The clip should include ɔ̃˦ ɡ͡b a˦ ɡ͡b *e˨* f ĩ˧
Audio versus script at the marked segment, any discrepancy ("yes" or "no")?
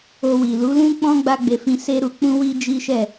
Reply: yes